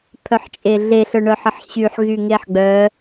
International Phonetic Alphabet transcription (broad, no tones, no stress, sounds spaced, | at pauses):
pʰ œ ħ t͡ʃʼ e ɮ e ɬ œ ɳ œ ħ ə ħ ɕ y ħ ɣ y ŋ e ħ ɡ͡b œ